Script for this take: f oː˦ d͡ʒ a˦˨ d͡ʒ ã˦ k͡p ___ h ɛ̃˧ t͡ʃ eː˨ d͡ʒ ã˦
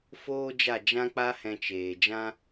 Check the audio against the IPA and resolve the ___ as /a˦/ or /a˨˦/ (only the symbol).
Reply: a˦